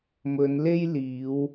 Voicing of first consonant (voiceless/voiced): voiced